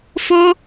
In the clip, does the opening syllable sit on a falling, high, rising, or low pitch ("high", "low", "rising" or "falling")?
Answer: high